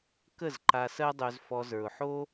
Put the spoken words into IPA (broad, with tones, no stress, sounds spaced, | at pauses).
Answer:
k ə˦˨ z ǃ a˧ s ɜ˦ dˤ ø˧ z f ɔ˧ z ə˞˨ ʊ̯ ħ o˦